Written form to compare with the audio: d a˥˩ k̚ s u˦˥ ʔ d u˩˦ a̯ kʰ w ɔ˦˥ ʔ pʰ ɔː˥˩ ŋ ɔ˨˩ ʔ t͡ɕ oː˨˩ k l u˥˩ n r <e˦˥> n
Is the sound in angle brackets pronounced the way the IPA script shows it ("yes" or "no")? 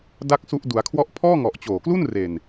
no